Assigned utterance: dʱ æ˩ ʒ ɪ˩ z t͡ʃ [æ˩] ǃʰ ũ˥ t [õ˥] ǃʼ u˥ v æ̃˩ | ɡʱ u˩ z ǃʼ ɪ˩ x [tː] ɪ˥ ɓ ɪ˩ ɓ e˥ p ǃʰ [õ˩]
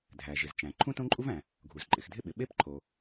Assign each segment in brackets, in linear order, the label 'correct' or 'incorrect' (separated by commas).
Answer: incorrect, correct, incorrect, incorrect